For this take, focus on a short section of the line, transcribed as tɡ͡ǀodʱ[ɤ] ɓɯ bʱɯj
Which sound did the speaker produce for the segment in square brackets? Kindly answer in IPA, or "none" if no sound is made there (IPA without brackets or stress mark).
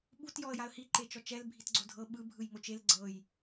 ɤ